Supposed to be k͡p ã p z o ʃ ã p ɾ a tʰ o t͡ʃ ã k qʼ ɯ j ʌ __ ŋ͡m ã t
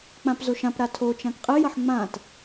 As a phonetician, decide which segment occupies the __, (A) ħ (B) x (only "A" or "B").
A